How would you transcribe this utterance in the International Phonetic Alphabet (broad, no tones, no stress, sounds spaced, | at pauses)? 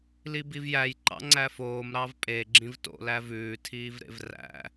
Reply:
l i b i v j æ j ǃ ɑ̰ ŋ͡ǀ æ f oː m ɾ ɑ v pʼ e ɡ͡ǁ ĩ v t o̰ l æ v ʉː tʰ iː v ɾ ḛ v r æ̰